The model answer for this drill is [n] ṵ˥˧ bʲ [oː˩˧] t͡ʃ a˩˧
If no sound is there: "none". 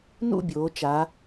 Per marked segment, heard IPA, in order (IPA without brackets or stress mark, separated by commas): n, oː˩˧